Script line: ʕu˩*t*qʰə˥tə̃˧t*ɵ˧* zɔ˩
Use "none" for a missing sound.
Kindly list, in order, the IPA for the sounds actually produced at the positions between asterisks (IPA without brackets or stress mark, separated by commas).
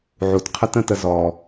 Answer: t, ə˧